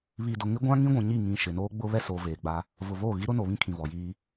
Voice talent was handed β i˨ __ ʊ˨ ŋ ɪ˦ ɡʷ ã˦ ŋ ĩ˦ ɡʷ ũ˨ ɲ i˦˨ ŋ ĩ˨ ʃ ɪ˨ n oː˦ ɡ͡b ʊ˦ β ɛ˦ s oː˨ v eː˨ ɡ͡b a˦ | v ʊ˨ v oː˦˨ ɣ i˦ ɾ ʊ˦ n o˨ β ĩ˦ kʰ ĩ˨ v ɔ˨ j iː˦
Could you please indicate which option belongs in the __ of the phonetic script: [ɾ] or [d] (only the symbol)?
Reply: d